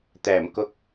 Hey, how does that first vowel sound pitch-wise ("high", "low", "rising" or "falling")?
low